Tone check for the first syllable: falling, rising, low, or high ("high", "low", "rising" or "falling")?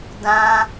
high